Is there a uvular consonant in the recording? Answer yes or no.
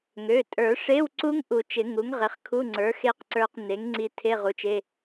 yes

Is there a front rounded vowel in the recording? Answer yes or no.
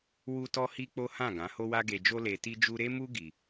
no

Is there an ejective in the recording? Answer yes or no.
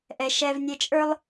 yes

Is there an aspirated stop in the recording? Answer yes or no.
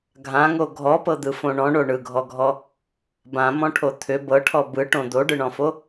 yes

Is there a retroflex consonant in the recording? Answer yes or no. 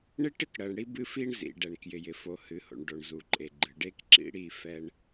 yes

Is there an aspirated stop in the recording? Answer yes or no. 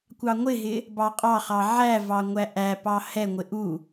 no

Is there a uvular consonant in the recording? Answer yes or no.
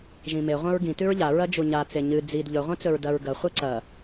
yes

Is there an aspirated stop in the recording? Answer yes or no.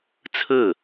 yes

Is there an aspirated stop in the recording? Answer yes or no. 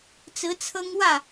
yes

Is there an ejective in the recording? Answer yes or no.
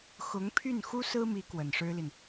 no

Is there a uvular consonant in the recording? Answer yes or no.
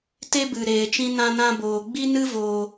no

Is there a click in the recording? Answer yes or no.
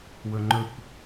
yes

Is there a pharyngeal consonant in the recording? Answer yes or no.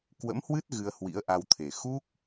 no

